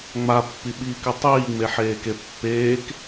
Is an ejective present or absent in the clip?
absent